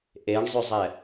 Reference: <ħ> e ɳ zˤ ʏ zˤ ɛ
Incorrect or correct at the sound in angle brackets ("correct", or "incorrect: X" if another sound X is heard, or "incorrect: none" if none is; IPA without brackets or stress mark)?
incorrect: ʔ